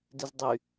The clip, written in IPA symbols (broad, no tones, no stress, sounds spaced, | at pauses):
d ɪ z dˤ y